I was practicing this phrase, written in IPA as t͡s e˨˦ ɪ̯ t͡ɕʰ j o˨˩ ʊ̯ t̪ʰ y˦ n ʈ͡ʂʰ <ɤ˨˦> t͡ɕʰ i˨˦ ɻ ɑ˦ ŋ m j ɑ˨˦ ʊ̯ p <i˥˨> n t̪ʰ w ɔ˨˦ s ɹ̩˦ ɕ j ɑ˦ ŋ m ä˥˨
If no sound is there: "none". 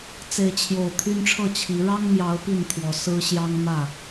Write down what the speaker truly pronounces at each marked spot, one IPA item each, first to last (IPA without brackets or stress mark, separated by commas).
ɤ˥˨, i˥˨